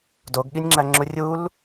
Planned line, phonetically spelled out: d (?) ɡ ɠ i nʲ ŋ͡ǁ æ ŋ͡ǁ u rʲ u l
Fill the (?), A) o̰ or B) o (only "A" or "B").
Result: B